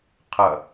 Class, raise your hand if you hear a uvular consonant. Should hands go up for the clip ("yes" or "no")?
yes